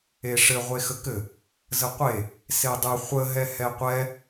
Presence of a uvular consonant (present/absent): present